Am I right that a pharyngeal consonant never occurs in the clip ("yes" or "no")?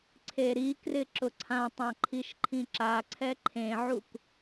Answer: no